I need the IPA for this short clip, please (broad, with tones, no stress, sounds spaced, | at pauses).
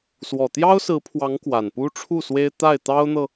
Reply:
s w ɔ˨˩ t̪ j ɑ˥ ʊ̯ s ɹ̩˧˥ pʰ w ɑ˧˥ ŋ k w a˨˩ n p u˥ ʈ͡ʂʰ u˥˩ s w e˥ ɪ̯ t̪ a˥˩ ɪ̯ t̪ ɑ˥ ʊ̯ n̪ ɤ˨